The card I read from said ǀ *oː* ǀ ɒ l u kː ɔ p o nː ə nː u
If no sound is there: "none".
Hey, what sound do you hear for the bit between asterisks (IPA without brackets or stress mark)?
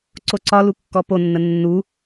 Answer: o